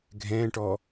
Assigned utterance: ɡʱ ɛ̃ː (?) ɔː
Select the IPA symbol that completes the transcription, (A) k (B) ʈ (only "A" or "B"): B